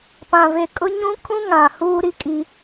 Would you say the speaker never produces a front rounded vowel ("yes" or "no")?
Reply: yes